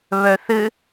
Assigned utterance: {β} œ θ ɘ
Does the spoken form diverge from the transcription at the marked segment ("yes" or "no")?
no